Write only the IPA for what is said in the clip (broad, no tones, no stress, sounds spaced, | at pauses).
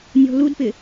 nʲ ɔ̤ l u d p ɪ